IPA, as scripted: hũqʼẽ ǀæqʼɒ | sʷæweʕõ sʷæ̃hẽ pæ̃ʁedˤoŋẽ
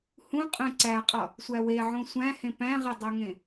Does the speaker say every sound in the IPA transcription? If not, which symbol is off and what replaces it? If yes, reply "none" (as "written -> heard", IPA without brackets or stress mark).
none